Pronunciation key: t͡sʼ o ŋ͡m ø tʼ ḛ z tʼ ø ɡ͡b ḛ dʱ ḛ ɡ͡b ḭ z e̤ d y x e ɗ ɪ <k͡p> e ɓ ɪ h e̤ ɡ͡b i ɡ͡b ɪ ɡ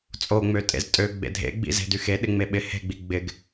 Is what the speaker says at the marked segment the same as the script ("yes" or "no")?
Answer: no